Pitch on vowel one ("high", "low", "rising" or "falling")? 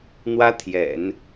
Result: high